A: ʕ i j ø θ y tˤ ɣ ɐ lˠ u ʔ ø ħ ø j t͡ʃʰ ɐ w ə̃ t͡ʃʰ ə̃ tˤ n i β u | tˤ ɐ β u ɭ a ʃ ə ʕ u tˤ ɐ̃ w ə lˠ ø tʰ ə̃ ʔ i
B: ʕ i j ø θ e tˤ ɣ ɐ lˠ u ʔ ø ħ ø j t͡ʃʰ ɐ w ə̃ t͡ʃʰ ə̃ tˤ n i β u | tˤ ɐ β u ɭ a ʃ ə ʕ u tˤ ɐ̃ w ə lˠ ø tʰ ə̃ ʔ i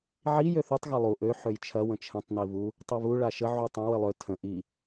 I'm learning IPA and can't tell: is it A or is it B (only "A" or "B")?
A